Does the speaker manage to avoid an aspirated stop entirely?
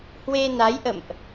yes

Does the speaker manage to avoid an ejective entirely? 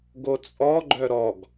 no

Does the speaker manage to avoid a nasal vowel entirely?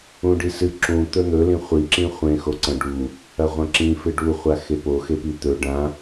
no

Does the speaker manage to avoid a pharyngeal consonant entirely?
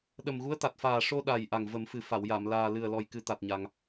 yes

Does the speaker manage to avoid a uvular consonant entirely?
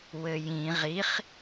no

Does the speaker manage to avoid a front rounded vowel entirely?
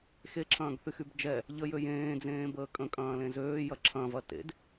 no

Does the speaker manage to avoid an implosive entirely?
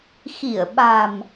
no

